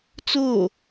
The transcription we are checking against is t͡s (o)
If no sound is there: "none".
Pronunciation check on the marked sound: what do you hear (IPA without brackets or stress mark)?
o